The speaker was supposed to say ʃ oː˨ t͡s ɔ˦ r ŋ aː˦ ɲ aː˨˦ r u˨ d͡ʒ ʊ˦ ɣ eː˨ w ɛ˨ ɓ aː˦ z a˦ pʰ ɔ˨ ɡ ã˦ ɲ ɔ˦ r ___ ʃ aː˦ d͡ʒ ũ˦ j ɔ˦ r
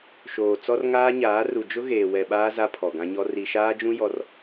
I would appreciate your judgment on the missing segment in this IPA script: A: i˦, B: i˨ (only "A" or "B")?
B